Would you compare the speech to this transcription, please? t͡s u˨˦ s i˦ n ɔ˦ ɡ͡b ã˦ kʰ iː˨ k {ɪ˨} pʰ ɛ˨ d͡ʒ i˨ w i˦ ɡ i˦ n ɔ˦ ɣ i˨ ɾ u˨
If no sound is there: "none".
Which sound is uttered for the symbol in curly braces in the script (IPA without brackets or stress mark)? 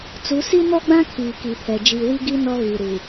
i˨